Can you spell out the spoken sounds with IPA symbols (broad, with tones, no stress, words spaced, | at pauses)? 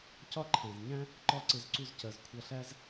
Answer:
cɒ˦ ǃʰæ̃˨zɲæ̃˦ | ǃɒ˦ǀɪ˧zǀu˧zcɜ˨z kʷʰʌ˨ɬæ˧z